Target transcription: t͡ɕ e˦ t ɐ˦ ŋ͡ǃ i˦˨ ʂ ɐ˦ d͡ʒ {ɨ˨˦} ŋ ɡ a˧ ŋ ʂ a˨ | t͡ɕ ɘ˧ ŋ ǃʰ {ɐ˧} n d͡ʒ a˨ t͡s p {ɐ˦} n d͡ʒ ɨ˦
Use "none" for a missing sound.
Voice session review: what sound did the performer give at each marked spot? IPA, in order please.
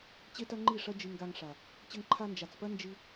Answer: ɨ˧, a˧, ɐ˦

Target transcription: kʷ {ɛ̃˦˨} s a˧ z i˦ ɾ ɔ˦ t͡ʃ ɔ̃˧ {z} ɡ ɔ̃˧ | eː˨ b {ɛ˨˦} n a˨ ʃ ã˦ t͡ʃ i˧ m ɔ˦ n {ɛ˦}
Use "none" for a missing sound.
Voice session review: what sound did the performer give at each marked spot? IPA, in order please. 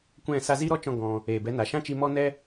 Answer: ɛ̃˦˨, none, ɛ˨˦, ɛ˦

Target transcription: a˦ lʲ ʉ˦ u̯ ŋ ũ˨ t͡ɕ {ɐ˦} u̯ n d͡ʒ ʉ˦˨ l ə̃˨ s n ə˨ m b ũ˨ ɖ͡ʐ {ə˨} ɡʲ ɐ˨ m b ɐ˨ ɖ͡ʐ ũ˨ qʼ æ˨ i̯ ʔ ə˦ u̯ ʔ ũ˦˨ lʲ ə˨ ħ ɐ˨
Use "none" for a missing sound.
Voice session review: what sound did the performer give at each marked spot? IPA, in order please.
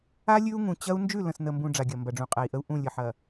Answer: ɐ˦, a˨

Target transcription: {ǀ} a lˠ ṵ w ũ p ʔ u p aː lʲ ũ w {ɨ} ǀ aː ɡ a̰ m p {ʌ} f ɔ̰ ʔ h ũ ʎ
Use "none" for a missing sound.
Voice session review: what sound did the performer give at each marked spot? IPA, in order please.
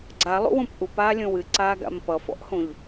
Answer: ɡ͡ǀ, ɨ, ʌ

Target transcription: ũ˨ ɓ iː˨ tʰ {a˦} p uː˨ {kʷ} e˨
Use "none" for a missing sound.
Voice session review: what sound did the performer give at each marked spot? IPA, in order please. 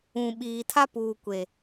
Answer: a˦, kʷ

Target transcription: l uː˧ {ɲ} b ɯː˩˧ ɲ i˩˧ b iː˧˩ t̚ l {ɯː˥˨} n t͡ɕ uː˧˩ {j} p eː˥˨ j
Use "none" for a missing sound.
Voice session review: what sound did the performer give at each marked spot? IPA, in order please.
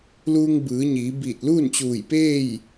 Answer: ŋ, uː˥˨, j

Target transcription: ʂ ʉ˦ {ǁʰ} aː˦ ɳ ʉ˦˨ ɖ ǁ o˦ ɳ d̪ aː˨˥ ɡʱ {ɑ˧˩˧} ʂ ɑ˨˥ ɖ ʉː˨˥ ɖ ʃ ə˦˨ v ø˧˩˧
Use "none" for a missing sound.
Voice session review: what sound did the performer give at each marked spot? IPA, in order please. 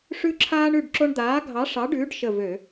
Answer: ǁʰ, ɑ˨˥

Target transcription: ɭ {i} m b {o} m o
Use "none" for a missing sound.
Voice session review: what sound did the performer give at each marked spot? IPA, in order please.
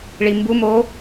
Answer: i, u

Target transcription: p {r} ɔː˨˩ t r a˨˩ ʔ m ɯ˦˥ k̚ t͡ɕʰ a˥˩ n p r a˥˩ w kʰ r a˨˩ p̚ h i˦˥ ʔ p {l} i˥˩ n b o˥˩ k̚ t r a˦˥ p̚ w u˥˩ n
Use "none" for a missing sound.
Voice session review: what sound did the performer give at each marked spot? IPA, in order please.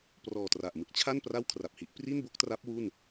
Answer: r, r

